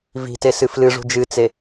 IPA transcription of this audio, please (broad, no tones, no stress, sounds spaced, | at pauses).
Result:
v i̤ t e s ɨ f l ɨ ʐ ṳ d͡ʒ ɨ t͡s e